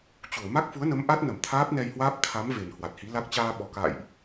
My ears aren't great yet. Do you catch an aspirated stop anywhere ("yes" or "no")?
yes